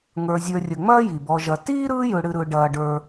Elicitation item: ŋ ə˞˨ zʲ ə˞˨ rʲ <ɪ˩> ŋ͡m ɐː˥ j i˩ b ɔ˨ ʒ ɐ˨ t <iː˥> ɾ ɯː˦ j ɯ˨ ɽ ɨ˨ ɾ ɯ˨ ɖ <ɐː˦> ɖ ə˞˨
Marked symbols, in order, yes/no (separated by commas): no, yes, no